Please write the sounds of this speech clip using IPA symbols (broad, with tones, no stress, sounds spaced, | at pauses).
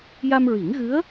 j a˧ m ɹ i˨˩˦ ŋ ɣ ɨ˧˥ ə̯